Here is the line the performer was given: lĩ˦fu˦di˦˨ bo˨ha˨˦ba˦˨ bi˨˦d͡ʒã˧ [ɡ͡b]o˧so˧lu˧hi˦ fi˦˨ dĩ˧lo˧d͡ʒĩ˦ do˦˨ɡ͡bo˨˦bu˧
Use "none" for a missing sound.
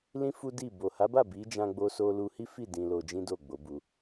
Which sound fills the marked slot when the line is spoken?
ɡ͡b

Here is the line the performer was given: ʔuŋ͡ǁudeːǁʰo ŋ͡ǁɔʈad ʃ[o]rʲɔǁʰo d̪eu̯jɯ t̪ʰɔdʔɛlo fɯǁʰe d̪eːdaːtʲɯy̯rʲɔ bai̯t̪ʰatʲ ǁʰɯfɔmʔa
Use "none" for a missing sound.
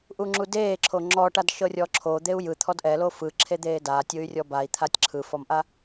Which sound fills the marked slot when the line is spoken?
ɤ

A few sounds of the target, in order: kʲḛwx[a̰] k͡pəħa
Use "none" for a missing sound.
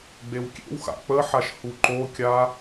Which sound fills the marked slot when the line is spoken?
a̰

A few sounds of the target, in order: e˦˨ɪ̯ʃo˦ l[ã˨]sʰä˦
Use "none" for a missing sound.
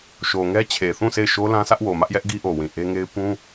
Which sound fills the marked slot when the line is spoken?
ã˦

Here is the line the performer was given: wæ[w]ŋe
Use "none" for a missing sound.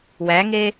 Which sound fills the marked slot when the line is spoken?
none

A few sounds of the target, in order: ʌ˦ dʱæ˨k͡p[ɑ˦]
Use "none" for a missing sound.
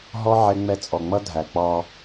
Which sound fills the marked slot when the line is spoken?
ɑ˦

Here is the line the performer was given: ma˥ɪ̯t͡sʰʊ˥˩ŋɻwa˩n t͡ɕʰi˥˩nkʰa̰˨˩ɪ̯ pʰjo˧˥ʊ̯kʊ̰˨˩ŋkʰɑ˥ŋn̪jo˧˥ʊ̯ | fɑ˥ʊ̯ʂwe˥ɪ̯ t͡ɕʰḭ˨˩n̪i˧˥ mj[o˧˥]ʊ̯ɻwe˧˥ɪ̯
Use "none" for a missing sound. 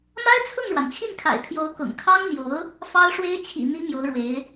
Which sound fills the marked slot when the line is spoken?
o˧˥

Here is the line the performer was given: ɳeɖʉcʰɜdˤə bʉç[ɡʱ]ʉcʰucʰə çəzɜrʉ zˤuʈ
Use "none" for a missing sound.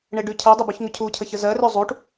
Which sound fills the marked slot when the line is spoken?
ŋ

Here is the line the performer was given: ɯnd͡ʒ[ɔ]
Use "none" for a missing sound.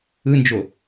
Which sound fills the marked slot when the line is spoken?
o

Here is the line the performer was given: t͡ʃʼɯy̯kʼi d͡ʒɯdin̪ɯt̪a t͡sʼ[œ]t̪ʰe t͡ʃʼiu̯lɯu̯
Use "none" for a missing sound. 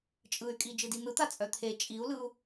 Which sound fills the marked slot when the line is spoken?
œ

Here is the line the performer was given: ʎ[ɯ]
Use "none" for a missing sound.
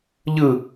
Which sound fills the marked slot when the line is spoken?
ɯ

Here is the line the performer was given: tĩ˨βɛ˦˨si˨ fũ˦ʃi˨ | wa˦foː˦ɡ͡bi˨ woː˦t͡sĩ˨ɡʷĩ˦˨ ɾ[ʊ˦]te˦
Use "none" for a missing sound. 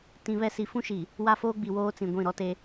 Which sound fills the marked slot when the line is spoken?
ɔ˦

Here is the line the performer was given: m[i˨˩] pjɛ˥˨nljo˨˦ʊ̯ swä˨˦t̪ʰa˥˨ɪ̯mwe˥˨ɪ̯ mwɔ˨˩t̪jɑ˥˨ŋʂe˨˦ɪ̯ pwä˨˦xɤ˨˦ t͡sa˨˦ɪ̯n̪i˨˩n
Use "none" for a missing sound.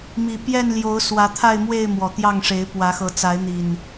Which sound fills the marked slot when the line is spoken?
i˨˩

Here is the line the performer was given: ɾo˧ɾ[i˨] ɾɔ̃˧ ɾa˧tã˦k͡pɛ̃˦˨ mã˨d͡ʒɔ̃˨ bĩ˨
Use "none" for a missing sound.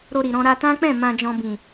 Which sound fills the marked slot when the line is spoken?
i˨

